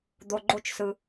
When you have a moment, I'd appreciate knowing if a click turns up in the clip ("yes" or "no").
yes